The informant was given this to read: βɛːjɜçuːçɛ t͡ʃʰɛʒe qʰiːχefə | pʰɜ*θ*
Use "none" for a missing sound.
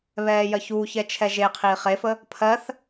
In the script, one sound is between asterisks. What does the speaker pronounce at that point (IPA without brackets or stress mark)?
θ